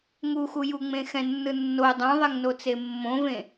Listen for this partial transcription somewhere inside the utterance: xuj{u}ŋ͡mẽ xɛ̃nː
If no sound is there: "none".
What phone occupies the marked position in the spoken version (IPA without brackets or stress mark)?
u